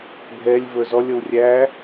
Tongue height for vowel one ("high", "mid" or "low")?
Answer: mid